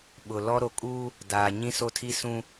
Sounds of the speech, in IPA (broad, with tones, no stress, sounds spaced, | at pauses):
ɓ ʊ˨ l ɔ˦ ɾ o˨ kʼ uː˦ | d aː˨ ɲ ĩ˦ s o˦ tʰ i˦ s ũ˦